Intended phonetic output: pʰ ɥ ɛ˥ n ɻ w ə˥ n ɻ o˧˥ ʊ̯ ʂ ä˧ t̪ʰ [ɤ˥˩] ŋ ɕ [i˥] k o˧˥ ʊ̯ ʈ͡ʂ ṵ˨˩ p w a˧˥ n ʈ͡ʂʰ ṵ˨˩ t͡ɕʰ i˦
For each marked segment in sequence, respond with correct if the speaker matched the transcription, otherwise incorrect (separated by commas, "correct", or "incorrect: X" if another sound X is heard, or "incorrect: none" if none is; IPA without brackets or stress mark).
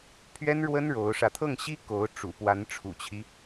correct, correct